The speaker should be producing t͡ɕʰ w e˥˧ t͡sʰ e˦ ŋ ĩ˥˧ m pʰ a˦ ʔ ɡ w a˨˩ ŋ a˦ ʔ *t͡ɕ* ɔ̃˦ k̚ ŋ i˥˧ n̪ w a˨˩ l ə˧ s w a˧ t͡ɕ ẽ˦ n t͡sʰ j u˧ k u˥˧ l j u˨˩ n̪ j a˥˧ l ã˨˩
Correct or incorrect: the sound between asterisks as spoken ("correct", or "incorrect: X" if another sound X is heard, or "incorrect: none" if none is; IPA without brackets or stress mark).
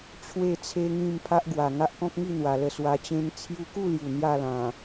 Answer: incorrect: k